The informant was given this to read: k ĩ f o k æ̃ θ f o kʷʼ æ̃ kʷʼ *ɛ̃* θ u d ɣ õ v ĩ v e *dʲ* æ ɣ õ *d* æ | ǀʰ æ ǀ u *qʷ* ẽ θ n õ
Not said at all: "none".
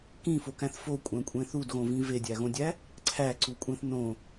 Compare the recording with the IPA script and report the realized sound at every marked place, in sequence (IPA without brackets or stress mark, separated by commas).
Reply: ẽ, dʲ, dʲ, kʷʼ